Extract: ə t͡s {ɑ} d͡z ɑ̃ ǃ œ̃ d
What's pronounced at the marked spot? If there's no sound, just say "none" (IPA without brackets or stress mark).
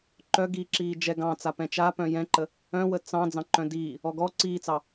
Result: ɑ̃